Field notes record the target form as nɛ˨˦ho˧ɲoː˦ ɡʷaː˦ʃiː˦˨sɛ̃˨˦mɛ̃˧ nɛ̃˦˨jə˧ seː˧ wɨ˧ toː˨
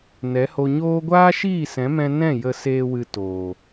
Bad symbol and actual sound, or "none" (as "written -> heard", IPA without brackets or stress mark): none